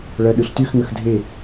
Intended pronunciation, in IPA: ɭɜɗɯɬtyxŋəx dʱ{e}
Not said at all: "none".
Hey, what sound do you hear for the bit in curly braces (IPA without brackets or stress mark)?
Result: e